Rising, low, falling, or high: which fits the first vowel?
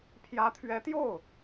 rising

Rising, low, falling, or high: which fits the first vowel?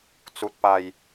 low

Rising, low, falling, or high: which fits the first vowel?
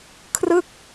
falling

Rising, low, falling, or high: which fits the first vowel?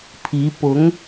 rising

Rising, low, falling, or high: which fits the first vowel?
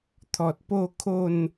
low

